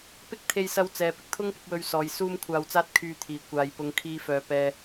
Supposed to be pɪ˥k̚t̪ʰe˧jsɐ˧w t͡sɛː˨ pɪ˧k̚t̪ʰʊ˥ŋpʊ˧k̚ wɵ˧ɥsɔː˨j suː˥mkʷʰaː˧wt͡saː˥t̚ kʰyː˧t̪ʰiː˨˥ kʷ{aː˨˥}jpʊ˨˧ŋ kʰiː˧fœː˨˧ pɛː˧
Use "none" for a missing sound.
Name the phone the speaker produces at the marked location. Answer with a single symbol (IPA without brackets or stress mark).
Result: aː˨